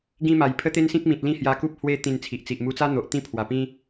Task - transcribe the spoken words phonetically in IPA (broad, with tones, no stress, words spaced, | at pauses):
ɡĩ˦ma˨˩j pʰə˦t̪e˦nsĩ˦k̚mĩ˨t̚ lĩ˦hja˧ku˦p̚ hwe˦ t̪ĩ˧nt͡sʰi˨ʔt͡si˨ʔ mu˧t͡sa˦n̪o˨ʔ t̪ĩ˥˧pʰwa˨˩pĩ˦